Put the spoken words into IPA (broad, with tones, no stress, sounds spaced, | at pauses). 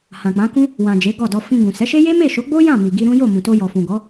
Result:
h ã˨ k͡p ã˨˦ k ũ˦ | w ã˨ d͡ʒ e˨˦ ɡ ɔ˦˨ d ɔ˧ f ĩ˧ ɡ ũ˨ s ɛ˨˦ ʃ e˦ j e˦ m e˦˨ ʃ o˨˦ ɡ͡b o˦ j ã˦˨ m i˨ ɡ i˧ ɾ ũ˦ j o˦˨ m ũ˨ t o˧ j ɔ˨ f ũ˨ ɡ ɔ˨˦